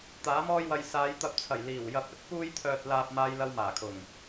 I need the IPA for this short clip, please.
t̪ aː˨˥ m ɔː˥ j w ɐ˧ j s aː˨˧ j t̪ ɐ˧ p̚ t͡sʰ ɐ˨˩ j l iː˨˩ w j ɐ˧ p̚ ɵ˨˥ t̚ p uː˥ j t̪ʰ œː˧ t̚ l aː˧ p̚ m aː˥ j l ɐ˥ w m aː˨˩ kʰ ʊ˨˩ ŋ

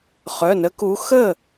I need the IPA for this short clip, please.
χ œ˩˧˩ n ə˨˦ k u˨˦ x ə˥˩

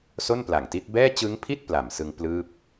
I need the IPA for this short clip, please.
s o˥˩ n p l a˨˩ ŋ t i˦˥ t̚ b ɛː˥˩ t͡ɕ ɯ˦˥ ŋ pʰ i˥˩ t̚ p l a˨˩ m s ɯ˧ ŋ p l ɯː˥˩ p̚

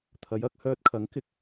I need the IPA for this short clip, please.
t̪ʰ ɐ˨˧ j ɐ˧ k̚ h œː˧ t̚ kʰ ɐ˨˥ ŋ k ɪ˨˥ k̚

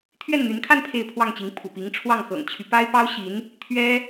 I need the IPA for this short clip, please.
t̪ʰ ɥ ɛ˥˩ n n̪ y˧˥ n kʰ a˥˧ n pʰ e˥˧ ɪ̯ pʰ w ɑ˥˩ ŋ t͡ɕ i˧˥ ŋ pʰ ṵ˨˩ p i˧˥ ŋ ʈ͡ʂʰ w ɑ˥˩ ŋ x ɤ̰˨˩ ŋ t͡ɕʰ y˦ p a˥ ɪ̯ p ɑ˥ ʊ̯ ɕ i˧˥ n | t̪ʰ ɥ ɛ˥

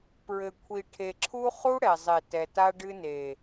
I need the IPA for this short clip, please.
p ɹ ɘ˨ kʷʰ i˨ ʈʰ e˨ ǁʰ u˦ χ u˦ ɽ ɛ˨ zˤ e˨ t ɛ˨ t a˦ ɖ ɨ˦ n e˨

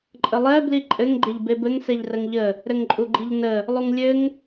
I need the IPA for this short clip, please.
ǃʼ ə lˠ ɛ b l i ǃʼ ɘ ŋ ɡ͡ǃ e ʎ b e b ɘ ŋ s ɛ ʎ r ə ŋ ʎ ə | ɾ ɘ ŋ ǃʼ u ɡ͡ǃ i ʎ n ə | lˠ u ŋ lʲ ɘ ŋ

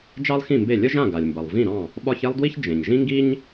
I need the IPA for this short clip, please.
d͡ʒ ɑ˥ lˠ x ĩ˥˩ m b e˥˩ lʲ ə˥ ʒ ã˥˩ ɡ a˩ lʲ m b ʌ˩ lˠ v ĩ˥˩ ɾ ɑ̃˥˩ | ɓ ɒ˥ ç e˥ lˠ d w i˥ ç d͡ʒ ẽ˩ ɲ ʒ ĩ˥ ŋ ɡ i˥ ɲ

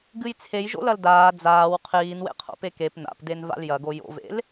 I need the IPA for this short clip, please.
ɡ ɨ j t͡sʰ e j ʒ o̰ l ɐ l d aː d͡z aː w qʰ iː n w ḛ qʰ o̰ p e k e p n a̰ p d e n v a̰ l j ɐ ɡ o j o̰ v ḛ l

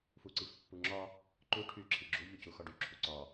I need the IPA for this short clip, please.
f u ǀ i f pː u ŋ͡ǁ ɒ | ǃ u ʈʰ y ǁʰ i ɡ͡ǁ u ʎ u c u x ɒ ɖ y ǁʰ u ǀ ɒ

